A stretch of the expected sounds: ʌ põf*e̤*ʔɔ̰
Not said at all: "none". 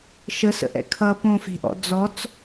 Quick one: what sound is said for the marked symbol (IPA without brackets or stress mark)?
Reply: e̤